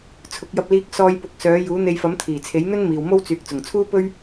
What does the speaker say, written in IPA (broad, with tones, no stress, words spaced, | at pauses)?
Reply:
t͡sʰʊ˨˥k̚jɐ˧p̚liː˧k̚ sɔː˧jpʊ˨˥k̚ sœː˨˥ juː˨˥n̪e˧jfɐ˨˥m t̪ʰiː˨˩t͡sʰe˨˥jn̪ɵ˥n miː˨wmo˥w t͡syː˨k̚ t͡sʊ˨˩ŋt͡sʰuː˥pɵ˥ɥ